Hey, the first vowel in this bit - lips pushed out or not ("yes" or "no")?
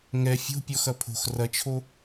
no